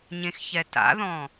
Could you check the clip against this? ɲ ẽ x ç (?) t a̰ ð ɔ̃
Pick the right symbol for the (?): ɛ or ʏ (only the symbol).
ɛ